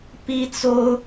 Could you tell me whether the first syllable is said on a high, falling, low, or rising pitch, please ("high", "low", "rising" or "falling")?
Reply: high